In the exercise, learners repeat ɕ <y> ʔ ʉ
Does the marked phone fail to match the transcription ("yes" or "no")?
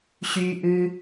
no